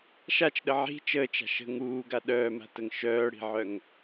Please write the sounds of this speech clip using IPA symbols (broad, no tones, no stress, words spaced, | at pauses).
ʃat͡ʃɗə ʕi̤ t͡ʃəːt͡ʃa̤ ʃə̤ ŋuːɡa ɗœːma̤təŋ ʃœːɽi̤ʕœŋ